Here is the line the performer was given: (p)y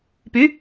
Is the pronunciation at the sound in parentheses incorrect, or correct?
correct